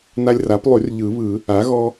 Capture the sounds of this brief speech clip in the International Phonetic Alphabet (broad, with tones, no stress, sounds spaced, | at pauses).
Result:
n a˦ lʲ r a˩˥ p lˠ y˨˩˦ r ʎ ɯ˨˩˦ β ɯ˨˩˦ | a˩˥ ɣ ɔ˦